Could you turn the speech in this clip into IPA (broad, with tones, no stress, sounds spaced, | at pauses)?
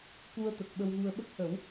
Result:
k u˧ ə̯ t̪ ə˨˩ k̚ ɓ ə˧ w ɣ u˧ ə̯ ɓ ə˦˥ k̚ h ə˨˩˦ w